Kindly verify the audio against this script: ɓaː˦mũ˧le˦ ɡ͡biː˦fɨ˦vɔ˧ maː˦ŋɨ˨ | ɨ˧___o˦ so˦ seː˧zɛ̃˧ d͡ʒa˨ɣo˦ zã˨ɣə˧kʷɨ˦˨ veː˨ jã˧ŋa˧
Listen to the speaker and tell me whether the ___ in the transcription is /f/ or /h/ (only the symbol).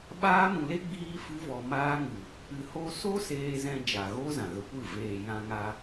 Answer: h